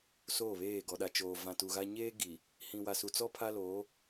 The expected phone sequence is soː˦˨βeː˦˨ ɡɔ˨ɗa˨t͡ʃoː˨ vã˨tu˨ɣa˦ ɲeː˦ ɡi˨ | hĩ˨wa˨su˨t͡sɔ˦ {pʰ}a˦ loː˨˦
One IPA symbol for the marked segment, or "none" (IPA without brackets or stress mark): pʰ